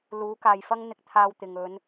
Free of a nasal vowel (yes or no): yes